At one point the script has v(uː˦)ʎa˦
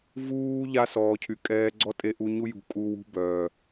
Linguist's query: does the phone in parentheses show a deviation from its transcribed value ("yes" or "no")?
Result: no